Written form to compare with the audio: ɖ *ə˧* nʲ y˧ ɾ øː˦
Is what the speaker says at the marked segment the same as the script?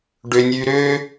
no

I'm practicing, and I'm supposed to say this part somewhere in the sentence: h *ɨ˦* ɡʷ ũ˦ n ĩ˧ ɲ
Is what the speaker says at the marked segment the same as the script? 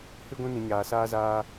yes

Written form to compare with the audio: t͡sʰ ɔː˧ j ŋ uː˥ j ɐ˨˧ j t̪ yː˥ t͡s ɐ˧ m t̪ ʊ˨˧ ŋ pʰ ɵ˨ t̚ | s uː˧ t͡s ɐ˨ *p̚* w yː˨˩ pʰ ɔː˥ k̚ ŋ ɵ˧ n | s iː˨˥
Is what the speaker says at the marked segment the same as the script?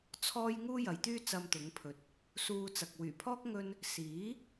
no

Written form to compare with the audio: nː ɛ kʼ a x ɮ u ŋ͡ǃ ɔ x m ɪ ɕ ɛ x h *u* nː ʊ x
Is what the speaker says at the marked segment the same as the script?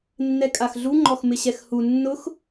yes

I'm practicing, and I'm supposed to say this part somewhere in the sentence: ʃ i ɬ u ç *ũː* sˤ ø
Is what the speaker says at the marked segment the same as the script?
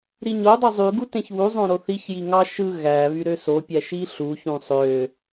no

